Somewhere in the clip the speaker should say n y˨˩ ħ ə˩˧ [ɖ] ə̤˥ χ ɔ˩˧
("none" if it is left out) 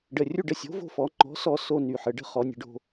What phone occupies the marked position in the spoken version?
ɖ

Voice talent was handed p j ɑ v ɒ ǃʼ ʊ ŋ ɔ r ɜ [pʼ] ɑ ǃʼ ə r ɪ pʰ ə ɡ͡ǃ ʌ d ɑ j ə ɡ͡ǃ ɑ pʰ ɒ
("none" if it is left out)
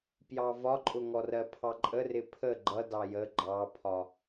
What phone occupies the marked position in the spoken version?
pʰ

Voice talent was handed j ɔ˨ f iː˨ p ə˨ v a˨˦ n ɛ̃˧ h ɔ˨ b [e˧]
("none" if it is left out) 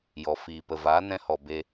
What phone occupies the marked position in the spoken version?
e˧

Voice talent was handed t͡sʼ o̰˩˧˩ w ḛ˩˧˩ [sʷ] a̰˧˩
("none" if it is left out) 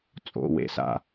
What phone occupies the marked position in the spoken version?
s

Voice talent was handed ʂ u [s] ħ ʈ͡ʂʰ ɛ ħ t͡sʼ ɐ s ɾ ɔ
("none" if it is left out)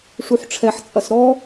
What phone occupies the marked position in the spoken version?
none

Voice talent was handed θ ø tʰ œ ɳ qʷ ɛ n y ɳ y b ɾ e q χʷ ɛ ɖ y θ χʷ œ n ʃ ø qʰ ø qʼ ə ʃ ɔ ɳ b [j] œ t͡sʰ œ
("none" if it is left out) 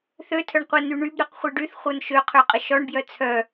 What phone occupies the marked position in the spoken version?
j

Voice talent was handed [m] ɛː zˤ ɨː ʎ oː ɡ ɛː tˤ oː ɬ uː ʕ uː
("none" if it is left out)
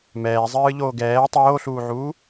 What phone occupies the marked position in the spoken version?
m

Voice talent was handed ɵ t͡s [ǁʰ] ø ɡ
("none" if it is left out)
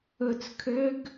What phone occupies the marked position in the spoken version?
kʰ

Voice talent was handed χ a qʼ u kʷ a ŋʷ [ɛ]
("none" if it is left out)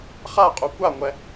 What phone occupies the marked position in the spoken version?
ɛ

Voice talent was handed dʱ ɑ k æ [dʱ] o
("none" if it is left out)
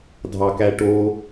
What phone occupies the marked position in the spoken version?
ʈ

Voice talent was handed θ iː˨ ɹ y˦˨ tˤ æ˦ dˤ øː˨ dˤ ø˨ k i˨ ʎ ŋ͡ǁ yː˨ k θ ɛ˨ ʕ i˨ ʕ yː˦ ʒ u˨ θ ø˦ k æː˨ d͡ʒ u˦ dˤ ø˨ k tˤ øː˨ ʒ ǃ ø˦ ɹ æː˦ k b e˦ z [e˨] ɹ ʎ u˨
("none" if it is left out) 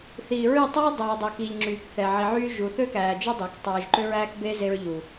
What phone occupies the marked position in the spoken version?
e˦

